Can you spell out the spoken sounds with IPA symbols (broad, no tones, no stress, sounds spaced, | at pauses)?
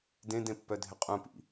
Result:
d ẽ d ẽ pː œ dʱ ɪ qʼ ũ p ḭ